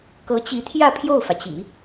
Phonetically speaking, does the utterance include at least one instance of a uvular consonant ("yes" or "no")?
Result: no